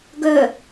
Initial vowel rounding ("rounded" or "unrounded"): rounded